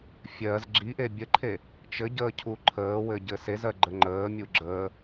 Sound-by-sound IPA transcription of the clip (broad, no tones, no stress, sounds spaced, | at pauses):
fʲ ɜ z ɡ͡ǁ i ʔ e bʲ ə ǃʰ e | t͡ʃ ɘ ɟ əː cʰ u ǃʰ əː w ɘ ɟ ɘ s e z ɜ ɡ͡ǃ ə ŋ͡ǃ əː mʲ u ɡ͡ǁ əː